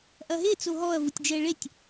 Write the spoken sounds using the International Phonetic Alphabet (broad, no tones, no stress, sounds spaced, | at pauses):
ʔ ɐ ɦ e t͡s o ɦ ɔ ɐ̯ v u tʲ d͡ʒ ɛ ɭ e tʲ